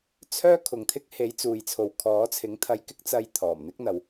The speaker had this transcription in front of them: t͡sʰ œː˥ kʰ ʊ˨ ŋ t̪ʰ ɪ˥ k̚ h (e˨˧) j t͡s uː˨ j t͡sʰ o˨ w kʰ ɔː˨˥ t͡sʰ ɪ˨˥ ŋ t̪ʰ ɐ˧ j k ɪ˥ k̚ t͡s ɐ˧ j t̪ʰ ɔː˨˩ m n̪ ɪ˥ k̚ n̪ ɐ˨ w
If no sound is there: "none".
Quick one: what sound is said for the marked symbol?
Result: e˨˥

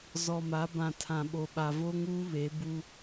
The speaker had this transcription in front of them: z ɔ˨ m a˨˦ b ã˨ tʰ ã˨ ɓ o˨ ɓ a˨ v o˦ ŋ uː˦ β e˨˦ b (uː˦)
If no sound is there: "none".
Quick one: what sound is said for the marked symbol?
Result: u˦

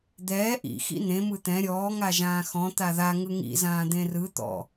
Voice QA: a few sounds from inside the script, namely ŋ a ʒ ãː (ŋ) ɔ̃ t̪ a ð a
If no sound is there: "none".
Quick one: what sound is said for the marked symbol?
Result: x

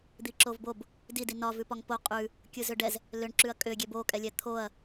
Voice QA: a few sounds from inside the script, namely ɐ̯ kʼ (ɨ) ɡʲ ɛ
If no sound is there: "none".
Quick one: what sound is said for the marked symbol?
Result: ʏ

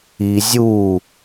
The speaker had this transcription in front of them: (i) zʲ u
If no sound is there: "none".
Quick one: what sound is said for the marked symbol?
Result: i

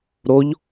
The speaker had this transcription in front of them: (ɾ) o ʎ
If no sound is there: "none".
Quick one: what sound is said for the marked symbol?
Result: ɾ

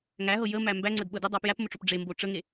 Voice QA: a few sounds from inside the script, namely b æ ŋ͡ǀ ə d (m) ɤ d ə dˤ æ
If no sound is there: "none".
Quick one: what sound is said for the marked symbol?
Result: ɓ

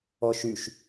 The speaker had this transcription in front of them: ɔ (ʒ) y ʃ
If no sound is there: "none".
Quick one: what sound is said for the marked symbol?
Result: ʃ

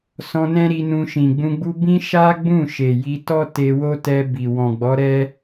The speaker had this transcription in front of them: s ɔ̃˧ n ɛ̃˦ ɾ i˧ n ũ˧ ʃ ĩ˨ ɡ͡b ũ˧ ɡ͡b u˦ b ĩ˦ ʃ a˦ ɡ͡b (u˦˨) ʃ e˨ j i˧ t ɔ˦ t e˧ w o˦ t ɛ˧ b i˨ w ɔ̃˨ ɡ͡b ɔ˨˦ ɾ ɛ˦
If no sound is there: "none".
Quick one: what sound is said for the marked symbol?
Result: ũ˦˨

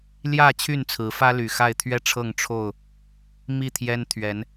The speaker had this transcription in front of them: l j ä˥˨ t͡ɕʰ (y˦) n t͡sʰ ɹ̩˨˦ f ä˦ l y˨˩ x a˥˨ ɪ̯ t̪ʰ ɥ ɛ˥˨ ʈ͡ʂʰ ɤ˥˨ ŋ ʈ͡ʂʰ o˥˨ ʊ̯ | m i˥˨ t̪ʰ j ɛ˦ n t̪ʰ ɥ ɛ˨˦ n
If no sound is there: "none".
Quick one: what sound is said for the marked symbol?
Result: y˥˨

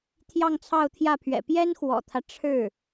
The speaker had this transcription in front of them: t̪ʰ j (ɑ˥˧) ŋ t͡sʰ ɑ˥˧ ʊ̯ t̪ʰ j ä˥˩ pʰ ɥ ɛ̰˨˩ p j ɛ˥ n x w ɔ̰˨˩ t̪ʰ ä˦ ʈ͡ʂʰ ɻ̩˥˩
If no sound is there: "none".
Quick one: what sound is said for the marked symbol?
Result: ɑ˥˧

